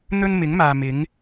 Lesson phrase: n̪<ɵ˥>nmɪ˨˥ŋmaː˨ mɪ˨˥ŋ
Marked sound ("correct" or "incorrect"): correct